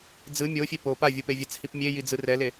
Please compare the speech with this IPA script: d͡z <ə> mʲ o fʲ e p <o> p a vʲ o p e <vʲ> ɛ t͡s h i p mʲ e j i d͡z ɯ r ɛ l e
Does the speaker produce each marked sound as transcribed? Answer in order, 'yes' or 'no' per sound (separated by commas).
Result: no, yes, yes